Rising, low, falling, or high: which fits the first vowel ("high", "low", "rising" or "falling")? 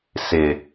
low